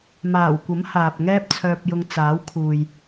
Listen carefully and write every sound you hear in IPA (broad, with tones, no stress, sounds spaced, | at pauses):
m aː˨˩ w kʷ ɐ˨˥ m h aː˨ p̚ ŋ ɛː˥ p̚ t͡sʰ œː˧ p̚ j ʊ˧ ŋ t͡s aː˨˥ w kʰ uː˨ j